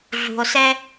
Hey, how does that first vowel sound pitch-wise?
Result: low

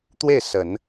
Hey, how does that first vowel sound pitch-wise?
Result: falling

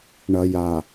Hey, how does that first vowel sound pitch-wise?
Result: low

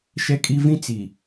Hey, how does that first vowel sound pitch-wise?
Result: low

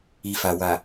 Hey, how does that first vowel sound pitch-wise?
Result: low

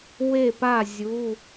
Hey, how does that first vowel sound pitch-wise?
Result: falling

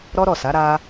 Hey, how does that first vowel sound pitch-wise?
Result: high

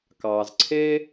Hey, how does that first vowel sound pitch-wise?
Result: low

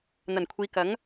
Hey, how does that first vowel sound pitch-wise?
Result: low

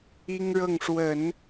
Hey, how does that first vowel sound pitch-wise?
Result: high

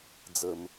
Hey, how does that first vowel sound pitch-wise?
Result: low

